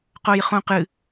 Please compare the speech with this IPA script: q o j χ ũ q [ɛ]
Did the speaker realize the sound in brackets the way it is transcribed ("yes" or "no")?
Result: no